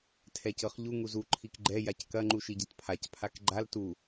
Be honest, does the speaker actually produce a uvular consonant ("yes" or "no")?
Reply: yes